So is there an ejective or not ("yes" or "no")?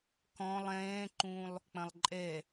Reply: yes